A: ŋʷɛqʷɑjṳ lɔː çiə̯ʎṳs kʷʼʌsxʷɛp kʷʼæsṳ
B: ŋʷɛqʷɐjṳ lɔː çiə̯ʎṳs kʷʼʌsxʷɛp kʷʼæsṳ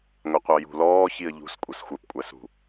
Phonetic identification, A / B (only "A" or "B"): A